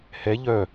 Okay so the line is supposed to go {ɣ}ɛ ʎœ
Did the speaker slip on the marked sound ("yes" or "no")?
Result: yes